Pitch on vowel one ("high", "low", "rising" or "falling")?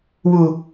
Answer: low